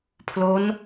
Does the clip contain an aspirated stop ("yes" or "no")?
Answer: yes